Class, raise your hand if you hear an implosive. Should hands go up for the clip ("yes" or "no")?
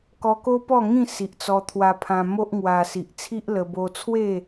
no